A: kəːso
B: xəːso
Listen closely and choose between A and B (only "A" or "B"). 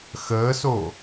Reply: B